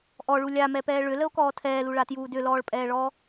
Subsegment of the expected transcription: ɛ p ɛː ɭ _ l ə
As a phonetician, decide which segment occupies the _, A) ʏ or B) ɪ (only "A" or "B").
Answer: A